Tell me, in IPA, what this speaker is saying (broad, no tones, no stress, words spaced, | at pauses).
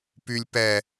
pylʲ pɛ